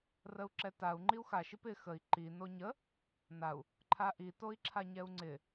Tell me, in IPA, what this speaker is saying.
r ə u̯ ǁ ɛ t a u̯ ŋ͡ǃ i u̯ x a ʃ i p ɪ x ə i̯ ǃ i n o ɲ ə | n a u̯ | ǃʰ a ʔ i t o i̯ ǁʰ a ɲ ɛ u̯ ŋ͡ǀ ɪ

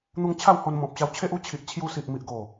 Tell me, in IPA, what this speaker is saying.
n̪ u˧ ŋ t͡ɕʰ a˥˧ w h o˧ n m ɔ̃˨ p̚ ɕ a˧ w t͡ɕʰ e˦ ʔ u˦ t͡ɕʰ i˨ ʔ t͡ɕʰ j u˧ s i˨ ʔ m i˨ ʔ ɡ o˨˩

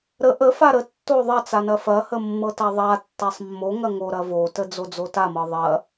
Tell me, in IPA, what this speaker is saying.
ɾ ə ʔ ə f a ɾ ə tː o ðˤ ɐ t͡s a n ɐ f ɐ h ə mː ɤ t a ðˤ a tː a sˤ mː o ŋ ɐ ŋ o ɾ ɐ v o t ə d͡z o d͡z o t a m ɤ ðˤ ɐ

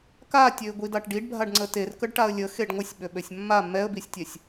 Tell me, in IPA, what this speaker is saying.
k a tʲ ø ɪ̯ ɡʷ i d a ʈ ɖ i ɖ bʱ a ɖ ŋ͡ǀ ə t e r k ə ɖ ʈ a ə̯ lʲ ə x e ɖ ŋʷ ə sʲ ɓ ø ɓ ø sʲ mː a mː ɛ ə̯ b i sʲ tʲ ɛ sʲ

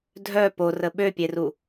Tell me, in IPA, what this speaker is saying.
dʱ œ p o r ə ɓ ø pʲ e r u

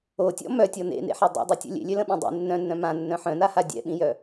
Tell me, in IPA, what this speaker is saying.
o tʲ ɔ̰ m œ tʲ ɔ n ḛ n ḛ ħ a dˤ ḛ dˤ u tʲ o̰ lʲ ḛ lʲ ø l ə̃ ɓ ĩ dˤ ḛ nː œ̃ nː œ̃ m ã nː œ̃ ħ œ̃ n a h a dʲ ɛ̰ ɓ ĩ j œ

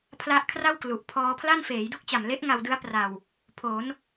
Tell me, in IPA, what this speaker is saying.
pʰ l a˦˥ ʔ kʰ r a˥˩ w k l u˨˩ ʔ pʰ ɔː˦˥ pʰ l a˥˩ n f eː˩˦ j d u˥˩ k̚ t͡ɕ a˨˩ m l e˦˥ ʔ ŋ a˧ w d ɯ˦˥ a̯ p r a˨˩ w | pʰ o˩˦ n

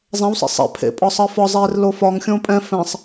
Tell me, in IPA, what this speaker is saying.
zˤ ɛ̃ w sˤ ḛ sˤ ɛ̰ pʰ ḛ pʼ ɒ sˤ əː f ɒ zˤ eː r l o f ɒ ŋ xʲ õ pʼ ɛ̃ f ɛ̃ sˤ

